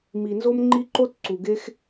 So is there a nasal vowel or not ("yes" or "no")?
no